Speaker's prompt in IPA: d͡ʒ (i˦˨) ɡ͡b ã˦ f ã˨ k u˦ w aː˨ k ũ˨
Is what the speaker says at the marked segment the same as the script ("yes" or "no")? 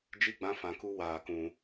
yes